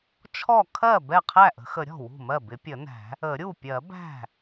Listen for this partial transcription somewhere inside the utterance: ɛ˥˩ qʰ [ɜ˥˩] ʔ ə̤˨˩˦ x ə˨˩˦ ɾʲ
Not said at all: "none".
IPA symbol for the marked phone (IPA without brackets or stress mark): æ˥˩